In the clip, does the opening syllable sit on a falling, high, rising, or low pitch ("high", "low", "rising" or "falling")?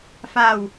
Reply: low